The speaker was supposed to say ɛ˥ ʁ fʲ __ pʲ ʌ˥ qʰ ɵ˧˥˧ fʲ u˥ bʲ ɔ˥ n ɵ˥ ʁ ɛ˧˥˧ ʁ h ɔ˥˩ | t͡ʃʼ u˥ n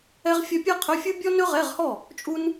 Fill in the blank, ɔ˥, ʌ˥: ʌ˥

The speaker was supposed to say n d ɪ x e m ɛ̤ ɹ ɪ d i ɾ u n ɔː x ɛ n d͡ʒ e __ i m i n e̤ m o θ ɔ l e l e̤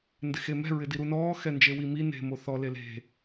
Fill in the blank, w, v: w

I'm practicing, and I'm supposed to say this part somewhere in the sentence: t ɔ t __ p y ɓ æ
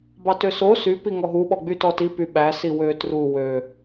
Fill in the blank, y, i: i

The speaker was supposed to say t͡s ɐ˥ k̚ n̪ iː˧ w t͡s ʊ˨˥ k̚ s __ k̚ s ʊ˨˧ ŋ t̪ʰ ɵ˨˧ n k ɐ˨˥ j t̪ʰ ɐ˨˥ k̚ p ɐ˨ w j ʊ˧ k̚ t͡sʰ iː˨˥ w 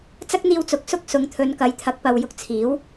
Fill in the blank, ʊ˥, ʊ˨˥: ʊ˥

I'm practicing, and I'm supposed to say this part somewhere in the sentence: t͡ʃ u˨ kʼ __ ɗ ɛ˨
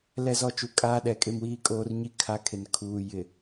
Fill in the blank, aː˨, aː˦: aː˦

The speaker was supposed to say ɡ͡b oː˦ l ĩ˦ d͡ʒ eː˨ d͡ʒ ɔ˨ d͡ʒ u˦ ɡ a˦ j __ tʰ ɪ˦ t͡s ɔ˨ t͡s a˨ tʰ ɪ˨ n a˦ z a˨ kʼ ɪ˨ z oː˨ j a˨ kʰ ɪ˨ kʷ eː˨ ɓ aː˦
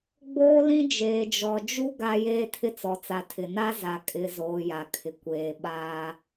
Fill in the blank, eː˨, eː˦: eː˦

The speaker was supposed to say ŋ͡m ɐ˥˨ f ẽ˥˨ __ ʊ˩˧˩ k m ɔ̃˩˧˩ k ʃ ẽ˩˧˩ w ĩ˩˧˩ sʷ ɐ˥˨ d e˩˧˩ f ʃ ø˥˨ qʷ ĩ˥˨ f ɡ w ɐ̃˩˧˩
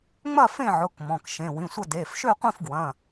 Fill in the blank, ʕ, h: ʕ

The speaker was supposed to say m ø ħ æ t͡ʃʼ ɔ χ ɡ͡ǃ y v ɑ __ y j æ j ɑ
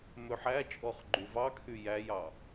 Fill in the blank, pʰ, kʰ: kʰ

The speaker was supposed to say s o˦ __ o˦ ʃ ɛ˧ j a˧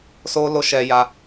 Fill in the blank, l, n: l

